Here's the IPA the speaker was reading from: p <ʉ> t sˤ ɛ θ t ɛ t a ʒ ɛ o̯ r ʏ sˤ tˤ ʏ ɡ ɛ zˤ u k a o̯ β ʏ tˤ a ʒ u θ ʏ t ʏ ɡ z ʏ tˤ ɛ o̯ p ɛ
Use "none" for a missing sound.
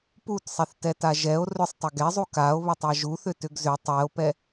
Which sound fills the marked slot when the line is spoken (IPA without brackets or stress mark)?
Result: u